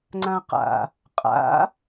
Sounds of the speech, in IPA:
ŋ͡ǀ ã q a̰ | qʼ a̰

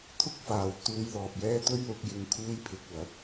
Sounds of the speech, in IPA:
t̪ʰ ʊ˥ k̚ f aː˨˧ w t̪ uː˧ j l ɔː˨ p̚ j ɛː˥ t̪ ɵ˥ ɥ l ʊ˧ k̚ j ɪ˧ ŋ kʰ uː˥ j pʰ ɪ˧ k̚ w ɐ˨˥ t̚

